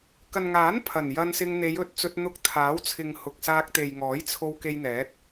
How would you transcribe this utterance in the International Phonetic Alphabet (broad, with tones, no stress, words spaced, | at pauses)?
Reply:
kɐ˨nŋaː˨˥n pʰɐ˨˩njɐ˧n sɪ˧ŋn̪e˨˧jɵ˨t̚ t͡sɵ˧t̚n̪ʊ˧k̚ t̪ʰaː˨˥wt͡sʰɪ˨ŋ hʊ˨k̚saː˧k̚ t̪e˨jŋɔː˨˥j t͡sʰo˧w ke˧jn̪ɛː˨˥t̚